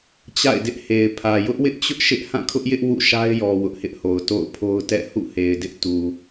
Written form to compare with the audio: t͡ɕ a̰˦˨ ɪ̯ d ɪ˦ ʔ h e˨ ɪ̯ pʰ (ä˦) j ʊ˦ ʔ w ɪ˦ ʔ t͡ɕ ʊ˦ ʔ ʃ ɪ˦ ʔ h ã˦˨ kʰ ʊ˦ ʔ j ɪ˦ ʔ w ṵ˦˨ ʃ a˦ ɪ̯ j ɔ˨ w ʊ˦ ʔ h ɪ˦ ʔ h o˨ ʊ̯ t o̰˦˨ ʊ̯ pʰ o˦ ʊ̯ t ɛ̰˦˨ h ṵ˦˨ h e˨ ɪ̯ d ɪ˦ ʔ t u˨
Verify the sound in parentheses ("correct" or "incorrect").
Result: incorrect